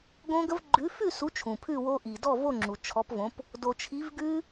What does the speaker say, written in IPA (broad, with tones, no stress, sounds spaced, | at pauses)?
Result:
ɡ õ˦˥ ɡ ə˦˥ v ɡ͡ǃ ʉ˨˥ f ʉ˥˨ s u˨˥ t͡ʃʰ ũ˩ pʰ ʉ˥˨ w o˦˥ ʔ i˩ d ɔ˥˨ v o˥˨ ŋ͡ǁ u˩ t͡ʃʰ ɔ˨˥ p v õ˨˥ p | d o˩ t͡ʃʰ i˨˥ v ɡ ʉ˦˥